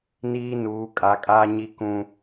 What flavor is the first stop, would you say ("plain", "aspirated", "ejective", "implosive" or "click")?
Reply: ejective